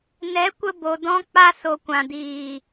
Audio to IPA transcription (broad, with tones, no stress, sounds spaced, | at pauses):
n ɛ˨˦ kʷ ə˧ b o˧ d ɔ̃˦ k͡p a˦ s o˨ kʷ ã˨ d iː˨